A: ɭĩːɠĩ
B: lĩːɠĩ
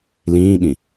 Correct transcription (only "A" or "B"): B